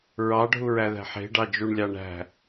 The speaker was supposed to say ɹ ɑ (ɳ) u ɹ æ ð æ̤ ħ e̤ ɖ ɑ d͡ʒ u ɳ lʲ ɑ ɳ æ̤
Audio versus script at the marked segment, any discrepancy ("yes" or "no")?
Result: yes